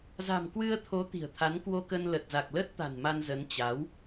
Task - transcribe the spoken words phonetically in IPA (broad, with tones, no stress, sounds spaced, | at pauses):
z a̤˨˩ m k w ɨ˧ ə̯ t̪ʰ o˨˦ t̪ i̤˨˩ ə̯ t̪ʰ a˨˦ n k w o˧ k ə˧ n l ə˨˩ t̚ z a˨˩ k̚ l ə˦˥ t̚ t̪ a̤˨˩ n m a˧ n z ə˨˦ n t͡ɕ a˨˦ w